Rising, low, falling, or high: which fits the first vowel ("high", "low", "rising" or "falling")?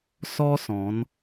high